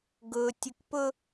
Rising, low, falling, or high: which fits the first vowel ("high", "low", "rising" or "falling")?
low